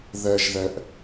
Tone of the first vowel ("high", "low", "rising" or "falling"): low